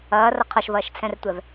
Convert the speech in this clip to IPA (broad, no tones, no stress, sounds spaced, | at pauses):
ɐː r ɐ qʰ ɐ ʃ v ɐː ʃ t͡sʰ ɛ̃ r tʷ ɛ v